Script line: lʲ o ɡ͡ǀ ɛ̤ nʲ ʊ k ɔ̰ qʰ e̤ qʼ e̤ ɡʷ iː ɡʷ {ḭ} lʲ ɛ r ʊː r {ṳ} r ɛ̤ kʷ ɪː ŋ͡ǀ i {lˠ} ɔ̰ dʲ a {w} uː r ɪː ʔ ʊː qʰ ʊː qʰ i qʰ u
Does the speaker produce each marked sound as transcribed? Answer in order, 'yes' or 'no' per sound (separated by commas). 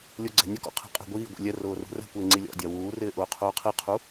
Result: yes, yes, no, yes